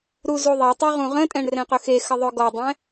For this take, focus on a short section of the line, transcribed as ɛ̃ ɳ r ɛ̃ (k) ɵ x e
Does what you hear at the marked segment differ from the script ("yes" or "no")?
yes